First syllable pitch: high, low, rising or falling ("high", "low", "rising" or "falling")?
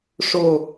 falling